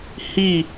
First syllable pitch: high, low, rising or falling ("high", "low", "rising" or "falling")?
falling